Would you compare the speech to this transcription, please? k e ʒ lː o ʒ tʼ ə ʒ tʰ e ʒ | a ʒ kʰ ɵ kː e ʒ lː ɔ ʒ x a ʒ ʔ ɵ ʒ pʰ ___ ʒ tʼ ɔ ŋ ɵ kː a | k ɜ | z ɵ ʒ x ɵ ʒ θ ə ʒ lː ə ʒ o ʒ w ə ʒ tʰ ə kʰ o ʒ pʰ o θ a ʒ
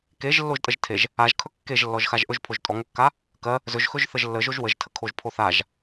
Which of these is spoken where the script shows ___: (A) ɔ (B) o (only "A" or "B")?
B